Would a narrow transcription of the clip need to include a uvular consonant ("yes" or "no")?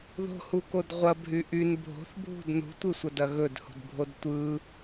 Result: yes